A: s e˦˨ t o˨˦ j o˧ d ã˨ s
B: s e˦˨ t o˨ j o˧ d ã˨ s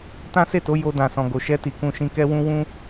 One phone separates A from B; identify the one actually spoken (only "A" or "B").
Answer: A